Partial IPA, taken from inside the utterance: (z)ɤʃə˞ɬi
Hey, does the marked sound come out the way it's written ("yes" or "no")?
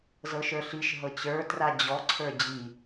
yes